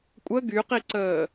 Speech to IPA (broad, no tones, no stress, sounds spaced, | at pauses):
kʷʼ ə ɡ y q i ǀ əː